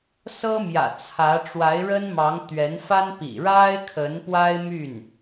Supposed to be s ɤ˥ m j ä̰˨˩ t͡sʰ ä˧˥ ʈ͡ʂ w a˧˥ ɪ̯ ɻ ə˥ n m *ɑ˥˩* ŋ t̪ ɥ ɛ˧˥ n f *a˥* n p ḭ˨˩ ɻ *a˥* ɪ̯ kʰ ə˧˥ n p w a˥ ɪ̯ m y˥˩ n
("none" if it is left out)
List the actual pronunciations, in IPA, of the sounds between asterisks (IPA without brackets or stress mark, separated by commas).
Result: ɑ˧˥, a˥, a˥